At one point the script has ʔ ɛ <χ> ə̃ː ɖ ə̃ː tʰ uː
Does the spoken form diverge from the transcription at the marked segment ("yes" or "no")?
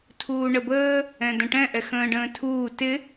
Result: yes